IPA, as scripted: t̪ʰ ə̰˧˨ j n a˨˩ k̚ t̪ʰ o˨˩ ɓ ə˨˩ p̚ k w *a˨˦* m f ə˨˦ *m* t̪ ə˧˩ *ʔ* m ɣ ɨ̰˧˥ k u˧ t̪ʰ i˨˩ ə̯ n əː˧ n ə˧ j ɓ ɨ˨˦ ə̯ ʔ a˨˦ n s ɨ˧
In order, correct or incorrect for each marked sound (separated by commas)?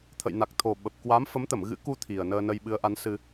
correct, correct, incorrect